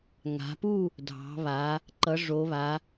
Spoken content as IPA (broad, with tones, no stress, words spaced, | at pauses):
ŋa̤˩˧pu˥˨ | dʱɑ̤˩˧βa˩˧ | ǃʌ˩˧ʐo˩˧βa˩˧